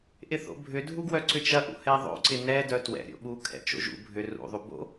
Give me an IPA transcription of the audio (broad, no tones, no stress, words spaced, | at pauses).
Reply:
ʔɪθo̰bʱʏ dʱuɡwœǀʏt͡ʃɐ ʔṵhɛðˤo̰ ǀɪnɛ dœtwɛ̰ ɾʲo̰ɓu kʰɛ̰t͡ʃo̰ʒṵ bʱʏ rṵ ðˤubo̰